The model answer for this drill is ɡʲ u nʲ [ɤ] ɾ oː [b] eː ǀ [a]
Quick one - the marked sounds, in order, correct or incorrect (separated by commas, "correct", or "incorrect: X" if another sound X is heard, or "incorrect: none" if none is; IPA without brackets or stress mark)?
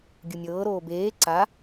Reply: incorrect: ɤː, correct, correct